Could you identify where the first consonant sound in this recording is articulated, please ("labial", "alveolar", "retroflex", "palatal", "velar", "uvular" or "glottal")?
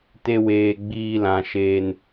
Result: alveolar